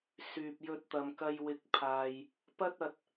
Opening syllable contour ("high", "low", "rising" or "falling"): low